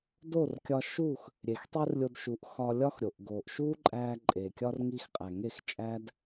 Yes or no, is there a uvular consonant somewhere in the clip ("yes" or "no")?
yes